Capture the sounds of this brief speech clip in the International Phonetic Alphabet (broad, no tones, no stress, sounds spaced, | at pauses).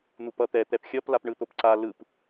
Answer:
n̪ u p ʌ t̪ ɛ t̪ ɛ p xʲ ʌ p l a p ɳ ɯ t̪ o p ǀ a l ɯ p